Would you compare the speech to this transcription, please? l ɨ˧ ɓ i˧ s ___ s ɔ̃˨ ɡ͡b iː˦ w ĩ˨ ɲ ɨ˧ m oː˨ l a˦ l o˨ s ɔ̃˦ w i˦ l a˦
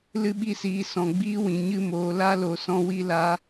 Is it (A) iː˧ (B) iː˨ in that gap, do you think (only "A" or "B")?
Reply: B